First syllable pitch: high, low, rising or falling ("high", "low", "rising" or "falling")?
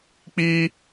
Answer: high